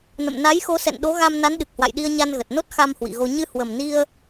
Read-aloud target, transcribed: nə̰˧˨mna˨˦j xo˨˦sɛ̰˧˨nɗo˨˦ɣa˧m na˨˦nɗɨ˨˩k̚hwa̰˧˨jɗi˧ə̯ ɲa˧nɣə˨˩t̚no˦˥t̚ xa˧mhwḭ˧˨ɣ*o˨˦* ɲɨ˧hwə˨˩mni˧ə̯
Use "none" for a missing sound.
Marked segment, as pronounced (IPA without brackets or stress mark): o˧